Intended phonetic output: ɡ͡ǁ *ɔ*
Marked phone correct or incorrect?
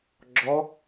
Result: correct